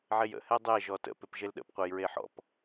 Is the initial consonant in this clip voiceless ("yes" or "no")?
no